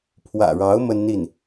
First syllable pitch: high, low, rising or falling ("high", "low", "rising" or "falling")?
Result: low